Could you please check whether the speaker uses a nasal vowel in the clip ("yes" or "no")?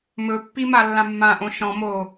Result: yes